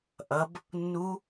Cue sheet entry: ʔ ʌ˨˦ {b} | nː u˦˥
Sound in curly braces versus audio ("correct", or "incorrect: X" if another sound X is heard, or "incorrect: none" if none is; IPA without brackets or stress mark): correct